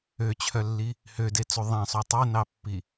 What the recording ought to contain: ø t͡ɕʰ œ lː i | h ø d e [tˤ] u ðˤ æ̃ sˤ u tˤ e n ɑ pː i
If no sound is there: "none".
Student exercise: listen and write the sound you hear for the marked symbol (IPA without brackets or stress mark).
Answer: t͡s